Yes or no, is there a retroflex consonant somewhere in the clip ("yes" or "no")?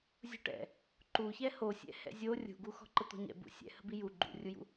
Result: yes